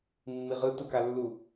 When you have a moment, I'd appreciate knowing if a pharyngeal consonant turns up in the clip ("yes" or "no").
no